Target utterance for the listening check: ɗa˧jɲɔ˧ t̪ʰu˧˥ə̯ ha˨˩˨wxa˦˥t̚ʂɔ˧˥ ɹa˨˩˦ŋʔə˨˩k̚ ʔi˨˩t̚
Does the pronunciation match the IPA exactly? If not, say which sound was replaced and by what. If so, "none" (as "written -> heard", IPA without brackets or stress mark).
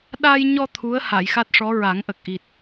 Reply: w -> j